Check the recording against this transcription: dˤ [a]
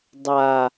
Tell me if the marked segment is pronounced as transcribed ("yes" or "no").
yes